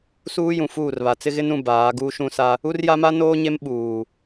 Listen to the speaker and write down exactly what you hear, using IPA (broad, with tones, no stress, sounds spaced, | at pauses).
s uː˦ j ũ˨ f uː˦˨ r β a˨ t͡s ɪ˦ ɣ ɪ˦ n ũ˨ b aː˨˦ ɡ uː˦ ʃ ũ˦ s a˦ | u˦ r j a˦ m a˦ n oː˦ ɲ e˦ m ɓ uː˨